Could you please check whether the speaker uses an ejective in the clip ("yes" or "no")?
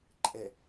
yes